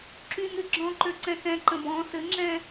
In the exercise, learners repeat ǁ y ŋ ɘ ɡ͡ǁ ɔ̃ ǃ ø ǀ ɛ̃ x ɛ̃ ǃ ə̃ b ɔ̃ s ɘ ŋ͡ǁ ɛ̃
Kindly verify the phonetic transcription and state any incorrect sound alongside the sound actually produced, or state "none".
none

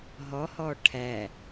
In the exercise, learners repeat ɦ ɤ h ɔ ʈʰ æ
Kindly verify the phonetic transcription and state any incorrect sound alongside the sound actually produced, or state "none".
ɤ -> ɔ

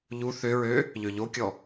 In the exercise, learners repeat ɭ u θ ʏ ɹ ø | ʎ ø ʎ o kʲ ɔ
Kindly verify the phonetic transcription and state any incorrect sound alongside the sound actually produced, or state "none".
ɭ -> ʎ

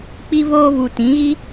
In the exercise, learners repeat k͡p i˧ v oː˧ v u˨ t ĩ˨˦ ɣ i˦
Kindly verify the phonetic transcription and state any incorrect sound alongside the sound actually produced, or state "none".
none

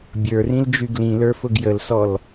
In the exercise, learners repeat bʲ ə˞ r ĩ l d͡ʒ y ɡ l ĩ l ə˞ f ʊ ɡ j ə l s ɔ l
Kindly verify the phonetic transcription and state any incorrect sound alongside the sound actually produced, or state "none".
none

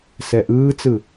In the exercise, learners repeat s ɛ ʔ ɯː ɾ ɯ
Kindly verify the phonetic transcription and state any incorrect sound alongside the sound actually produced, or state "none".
ɾ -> t͡s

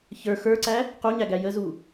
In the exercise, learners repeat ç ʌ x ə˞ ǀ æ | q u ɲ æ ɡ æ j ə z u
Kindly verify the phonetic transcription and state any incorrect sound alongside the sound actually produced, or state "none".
ʌ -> ə˞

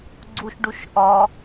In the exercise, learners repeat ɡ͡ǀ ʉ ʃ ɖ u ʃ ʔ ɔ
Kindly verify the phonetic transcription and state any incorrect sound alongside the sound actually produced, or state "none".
ʉ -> u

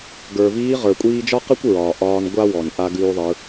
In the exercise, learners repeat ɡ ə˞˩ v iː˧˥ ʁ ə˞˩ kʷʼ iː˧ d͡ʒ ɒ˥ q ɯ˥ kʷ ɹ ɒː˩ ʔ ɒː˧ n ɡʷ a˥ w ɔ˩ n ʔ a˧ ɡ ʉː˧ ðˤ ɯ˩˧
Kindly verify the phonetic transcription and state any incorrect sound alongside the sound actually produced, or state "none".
none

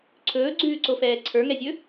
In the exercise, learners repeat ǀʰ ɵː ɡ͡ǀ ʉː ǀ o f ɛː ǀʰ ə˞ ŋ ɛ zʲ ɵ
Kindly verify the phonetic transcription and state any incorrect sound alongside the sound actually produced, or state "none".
none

